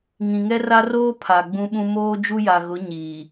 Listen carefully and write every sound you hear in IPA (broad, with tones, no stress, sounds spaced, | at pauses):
ŋ ĩ˨ ŋ ɛ˦ r a˦ r oː˦ pʰ a˨ ɡ͡b ũ˦ ɓ ũ˦ m oː˦ d͡ʒ u˦ j a˨ ɣ ʊ˨˦ ɲ iː˨